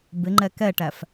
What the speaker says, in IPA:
b ɪ ŋ͡ǃ ɛ k ɛ ʈ æ f

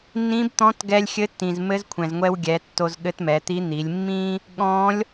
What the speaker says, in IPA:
nː ĩ˧˥ b t̪ ɔ̃˧˥ t ɡ ɛ˧ lʲ xʲ ɘ˧˥ tː ĩ˩ z m ɘ˧˥ z kʷʰ ɛ̃˩ z ŋʷ ɛ˧ w ɡʲ ɛ˩˧ tː o˧ z ɠ ɘ˧˥ t m ɛ˩˧ t̪ i˧˥ n̪ i˩˧ lʲ mː ĩ˥ | ɠ ɔ̃˩˧ lʲ

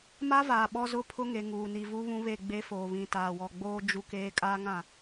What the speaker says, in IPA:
m a˦ v aː˨ ɓ ɔ˦ z ʊ˦ pʰ ʊ˦ ŋ e˨ ŋ uː˨ n i˨ v u˦ β ũ˦ β e˦˨ ɡ͡b e˦ f oː˨ β ĩ˨ t aː˨ w ɔ˨ ɡ͡b oː˦ d͡ʒ u˦ k eː˦ kʼ aː˦ ŋ ã˦˨

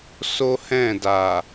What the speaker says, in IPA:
s o˦ h ɛ̃˦˨ d a˨

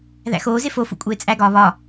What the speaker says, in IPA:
ð æ̰ x oː z e f o f ṵ kʷʼ eː t͡sʼ æ ɡ ɒː β ɒ

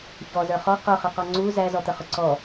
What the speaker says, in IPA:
ç ɔ z ə˞ χ ɔ q ʊ χ ə q ɔ ŋ͡ǀ u z æ z ɔ t̪ ə χ ʊ ǀ ɔ

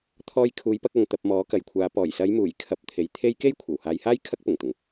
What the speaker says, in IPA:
t̪ʰ ɔː˧ j kʰ uː˨˧ j p ɐ˧ k̚ ɐ˨ ŋ t̪ ɐ˧ p̚ m ɔː˨˥ k ɐ˨ j kʷʰ aː˨˧ p ɔː˨˩ j s ɐ˨˧ j m uː˨˩ j kʰ ɐ˧ p̚ t̪ʰ e˨˧ j t̪ʰ e˥ j k e˥ j kʷʰ ɐ˨˩ w h aː˨˧ j h aː˥ j kʰ ɐ˥ k̚ p ʊ˨˩ ŋ t̪ ʊ˨˩ ŋ

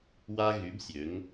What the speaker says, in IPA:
w a˦ ɣ y˨˦ b sʲ ø˨˦ ŋ

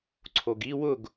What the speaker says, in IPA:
ǀʰ o ɡ i w ʊ ɡ

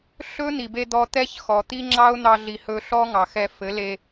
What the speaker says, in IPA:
ɬ ɵ˦ n̪ i˨ b e˧ d̪ ɔ˧ t̪ ɛ˦ ç x ɔ˨ t̪ i˦ ŋ͡ǁ ɑ˦ ʊ̯ n̪ ɑ˧ ɮ i˨ h ɵ˧ ɬ ɔ˦ ŋ ɑ˨ x ɛ˧ f ɘ˨˦ l e˧

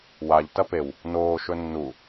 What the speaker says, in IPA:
w a ʎ t ɐ p e w | n oː ʃ ɵ nː u

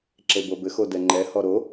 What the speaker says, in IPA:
ǁ e b o b ɘ x o d ɛ ŋ͡ǃ ɛ h ɔ ɾ o

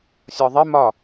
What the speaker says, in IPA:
sʲ ɒ ðˤ ɪ m ɒ

